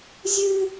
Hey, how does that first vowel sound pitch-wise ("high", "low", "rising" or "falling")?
high